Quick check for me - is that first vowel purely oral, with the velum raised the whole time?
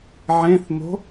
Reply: no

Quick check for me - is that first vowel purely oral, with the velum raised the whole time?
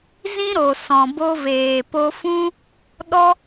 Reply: no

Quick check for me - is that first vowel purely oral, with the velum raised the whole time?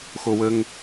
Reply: yes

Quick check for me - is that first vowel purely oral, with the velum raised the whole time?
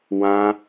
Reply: no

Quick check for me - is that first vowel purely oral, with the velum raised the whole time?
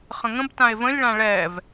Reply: no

